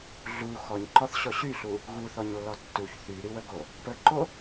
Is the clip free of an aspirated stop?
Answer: yes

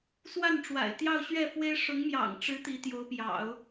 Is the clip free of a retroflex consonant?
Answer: no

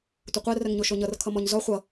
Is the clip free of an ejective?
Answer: yes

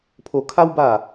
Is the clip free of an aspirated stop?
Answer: no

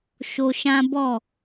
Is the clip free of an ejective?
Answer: yes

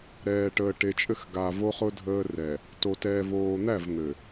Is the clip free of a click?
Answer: yes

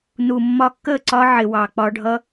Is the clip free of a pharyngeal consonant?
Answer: no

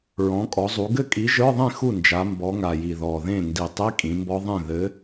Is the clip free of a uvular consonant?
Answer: yes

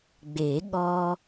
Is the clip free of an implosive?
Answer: no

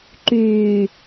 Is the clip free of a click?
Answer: no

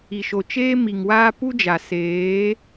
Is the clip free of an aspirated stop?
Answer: yes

